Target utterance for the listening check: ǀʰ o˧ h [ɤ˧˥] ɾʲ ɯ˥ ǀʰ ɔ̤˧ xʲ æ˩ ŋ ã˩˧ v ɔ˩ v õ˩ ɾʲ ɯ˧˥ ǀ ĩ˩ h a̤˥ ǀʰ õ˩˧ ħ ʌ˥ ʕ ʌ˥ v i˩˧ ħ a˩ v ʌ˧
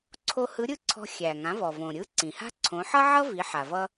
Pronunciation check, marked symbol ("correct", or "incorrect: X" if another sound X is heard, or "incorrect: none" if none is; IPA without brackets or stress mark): incorrect: ɯ˧˥